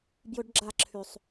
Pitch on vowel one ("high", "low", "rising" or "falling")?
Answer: high